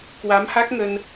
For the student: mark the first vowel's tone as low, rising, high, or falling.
rising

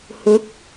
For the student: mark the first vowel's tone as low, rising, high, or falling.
rising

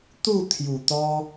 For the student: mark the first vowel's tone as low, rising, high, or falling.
falling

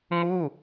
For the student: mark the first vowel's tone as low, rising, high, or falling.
falling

